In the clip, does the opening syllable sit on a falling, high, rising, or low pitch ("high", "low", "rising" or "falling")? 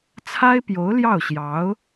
high